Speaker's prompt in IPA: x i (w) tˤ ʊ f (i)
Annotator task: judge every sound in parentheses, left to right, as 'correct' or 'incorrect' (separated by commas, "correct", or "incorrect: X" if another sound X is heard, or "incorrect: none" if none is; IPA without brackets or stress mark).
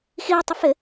correct, incorrect: ɪ